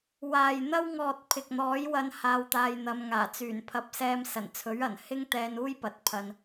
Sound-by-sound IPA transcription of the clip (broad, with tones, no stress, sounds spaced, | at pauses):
w aː˨ j n̪ ɐ˥ w ŋ ɔː˨ t̚ pʰ ɪ˨ k̚ n̪ ɔː˨˥ j w ɐ˧ n h aː˧ w t̪ aː˧ j n̪ ɐ˨˧ m ŋ aː˨˩ t͡s yː˨˩ n pʰ ɐ˧ p̚ s ɛː˧ m s ɐ˨˩ n t͡sʰ ɵ˨˥ ɥ ɐ˨˩ n h ɪ˥ ŋ t̪ ɛː˧ n uː˥ j p ɐ˨ t̚ pʰ ɐ˧ n